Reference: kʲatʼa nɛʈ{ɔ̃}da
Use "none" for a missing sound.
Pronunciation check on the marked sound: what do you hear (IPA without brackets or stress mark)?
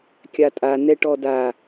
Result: ɔ